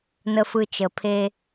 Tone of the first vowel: low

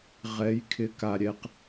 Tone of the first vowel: rising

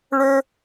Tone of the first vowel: high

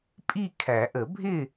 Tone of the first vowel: falling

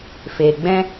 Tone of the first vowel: low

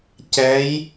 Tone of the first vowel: rising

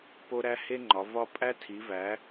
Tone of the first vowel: high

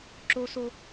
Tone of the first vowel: high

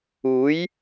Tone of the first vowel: rising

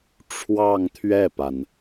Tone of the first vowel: falling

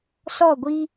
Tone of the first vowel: falling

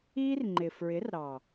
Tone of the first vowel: high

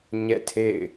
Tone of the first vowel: falling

